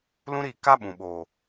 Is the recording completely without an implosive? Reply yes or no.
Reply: no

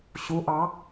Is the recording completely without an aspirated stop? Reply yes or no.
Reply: yes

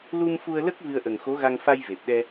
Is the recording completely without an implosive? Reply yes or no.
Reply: no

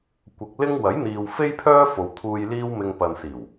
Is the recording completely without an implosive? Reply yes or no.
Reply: yes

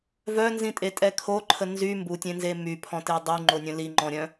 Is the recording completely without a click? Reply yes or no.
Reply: no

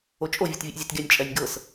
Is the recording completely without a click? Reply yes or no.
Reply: yes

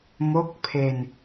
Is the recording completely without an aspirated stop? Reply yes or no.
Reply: no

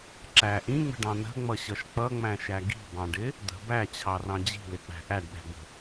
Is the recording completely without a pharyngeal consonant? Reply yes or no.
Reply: yes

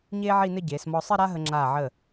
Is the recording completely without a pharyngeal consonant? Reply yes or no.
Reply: no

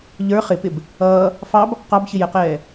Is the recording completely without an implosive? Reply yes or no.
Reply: yes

